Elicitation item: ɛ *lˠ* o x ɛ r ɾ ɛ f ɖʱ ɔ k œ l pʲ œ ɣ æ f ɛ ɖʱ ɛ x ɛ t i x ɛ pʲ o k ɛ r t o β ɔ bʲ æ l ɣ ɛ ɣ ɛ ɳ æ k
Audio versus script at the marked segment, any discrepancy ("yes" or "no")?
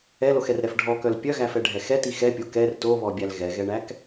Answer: yes